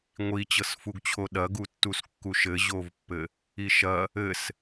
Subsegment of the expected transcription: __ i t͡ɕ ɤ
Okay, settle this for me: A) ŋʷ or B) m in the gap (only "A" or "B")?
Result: A